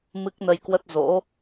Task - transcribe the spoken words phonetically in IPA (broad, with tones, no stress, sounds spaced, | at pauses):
m ɨ˦˥ k̚ n ə˧ j k w ə˦˥ t̚ z o̰˧˥